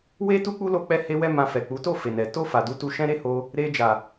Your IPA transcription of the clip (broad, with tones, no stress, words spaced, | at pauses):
we˦ tu˦k͡pu˦ lo˦k͡pɛ˦ he˧wɛ˧ mã˧fɛ˨ k͡pu˨˦to˦˨ fe˨nɛ˨ to˧ fa˨du˨˦tu˧ ʃɛ̃˧ɾe˧ ho˧ | ɾe˧d͡ʒa˨